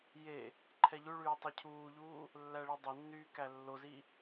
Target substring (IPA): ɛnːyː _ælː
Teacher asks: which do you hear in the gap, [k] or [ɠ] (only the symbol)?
k